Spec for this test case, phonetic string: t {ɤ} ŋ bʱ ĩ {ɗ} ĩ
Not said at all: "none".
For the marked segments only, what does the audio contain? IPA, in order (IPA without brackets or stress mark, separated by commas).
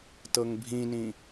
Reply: ɤ, n